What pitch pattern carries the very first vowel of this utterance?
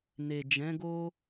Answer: low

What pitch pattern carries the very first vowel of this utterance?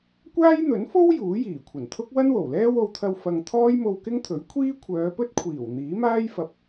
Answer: high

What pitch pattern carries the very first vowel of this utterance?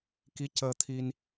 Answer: rising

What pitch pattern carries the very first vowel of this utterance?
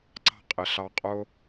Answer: high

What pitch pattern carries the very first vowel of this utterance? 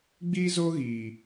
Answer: high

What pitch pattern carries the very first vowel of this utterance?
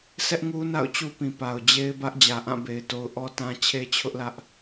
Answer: high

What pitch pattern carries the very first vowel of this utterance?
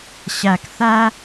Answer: low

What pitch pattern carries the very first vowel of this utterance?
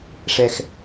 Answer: low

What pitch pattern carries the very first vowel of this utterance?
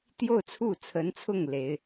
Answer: falling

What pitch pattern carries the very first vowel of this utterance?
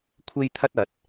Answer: high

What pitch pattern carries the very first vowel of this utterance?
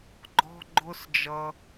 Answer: high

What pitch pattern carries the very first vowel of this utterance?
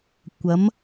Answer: rising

